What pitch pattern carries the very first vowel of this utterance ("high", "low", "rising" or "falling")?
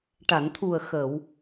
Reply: low